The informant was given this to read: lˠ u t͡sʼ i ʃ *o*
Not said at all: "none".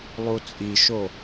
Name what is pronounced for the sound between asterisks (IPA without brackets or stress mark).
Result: o